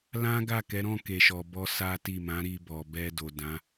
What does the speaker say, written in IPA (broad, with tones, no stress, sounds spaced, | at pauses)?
l ã˦ ɡ a˦˨ k ɛ˨˦ ɾ ɔ̃˦˨ k e˨ ʃ ɔ˨ b ɔ˧ s a˦ t i˦˨ m ã˨˦ ɾ i˧ b ɔ˨ b ɛ˧ d o˨ d ã˨˦